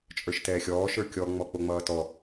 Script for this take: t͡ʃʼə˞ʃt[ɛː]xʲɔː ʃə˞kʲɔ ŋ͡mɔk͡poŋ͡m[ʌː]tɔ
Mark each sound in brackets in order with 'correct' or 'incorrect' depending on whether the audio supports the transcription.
correct, correct

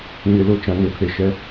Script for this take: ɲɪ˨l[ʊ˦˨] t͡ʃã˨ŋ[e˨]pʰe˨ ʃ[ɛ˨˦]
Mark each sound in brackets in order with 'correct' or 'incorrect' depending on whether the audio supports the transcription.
correct, correct, correct

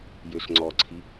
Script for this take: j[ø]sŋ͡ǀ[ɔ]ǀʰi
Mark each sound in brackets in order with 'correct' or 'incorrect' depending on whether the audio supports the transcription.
correct, correct

